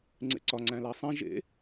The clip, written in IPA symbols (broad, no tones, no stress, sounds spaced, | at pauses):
ŋ͡ǀ ḛ ǀ ɒ ŋ͡ǀ æ̃ l æ sˤ ĩ ʒ ḛ